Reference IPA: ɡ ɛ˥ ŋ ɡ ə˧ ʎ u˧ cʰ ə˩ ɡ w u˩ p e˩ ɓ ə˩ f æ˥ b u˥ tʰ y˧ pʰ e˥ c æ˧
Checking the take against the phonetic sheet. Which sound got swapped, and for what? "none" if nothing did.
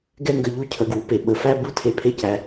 y˧ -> e˧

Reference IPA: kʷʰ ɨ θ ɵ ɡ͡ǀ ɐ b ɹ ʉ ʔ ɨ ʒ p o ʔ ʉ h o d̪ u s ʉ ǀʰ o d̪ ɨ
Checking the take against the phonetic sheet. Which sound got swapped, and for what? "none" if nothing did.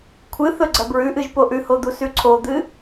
none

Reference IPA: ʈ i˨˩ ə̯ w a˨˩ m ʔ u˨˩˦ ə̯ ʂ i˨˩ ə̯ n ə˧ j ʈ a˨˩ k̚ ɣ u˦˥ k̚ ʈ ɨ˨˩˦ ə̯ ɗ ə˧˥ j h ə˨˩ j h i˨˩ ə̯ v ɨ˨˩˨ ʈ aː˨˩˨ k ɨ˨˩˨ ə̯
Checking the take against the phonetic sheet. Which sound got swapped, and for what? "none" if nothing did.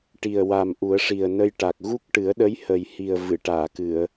none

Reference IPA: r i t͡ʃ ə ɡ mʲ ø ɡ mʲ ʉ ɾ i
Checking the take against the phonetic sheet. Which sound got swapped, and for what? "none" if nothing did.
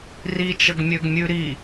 none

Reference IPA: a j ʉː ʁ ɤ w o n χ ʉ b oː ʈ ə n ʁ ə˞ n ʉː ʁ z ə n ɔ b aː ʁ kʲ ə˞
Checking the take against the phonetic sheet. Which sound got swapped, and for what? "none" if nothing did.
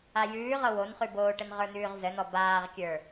none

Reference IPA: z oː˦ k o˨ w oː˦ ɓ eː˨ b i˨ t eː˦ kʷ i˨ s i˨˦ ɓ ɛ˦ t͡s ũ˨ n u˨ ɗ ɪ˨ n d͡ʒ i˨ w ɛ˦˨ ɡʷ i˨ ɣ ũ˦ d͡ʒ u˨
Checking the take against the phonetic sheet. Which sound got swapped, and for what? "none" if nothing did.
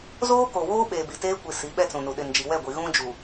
none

